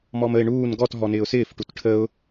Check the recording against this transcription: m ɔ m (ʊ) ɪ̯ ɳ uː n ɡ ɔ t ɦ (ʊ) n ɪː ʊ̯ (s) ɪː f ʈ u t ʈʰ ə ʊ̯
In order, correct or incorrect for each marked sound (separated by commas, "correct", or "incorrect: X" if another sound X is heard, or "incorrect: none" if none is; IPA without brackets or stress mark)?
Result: incorrect: ə, incorrect: ɔ, correct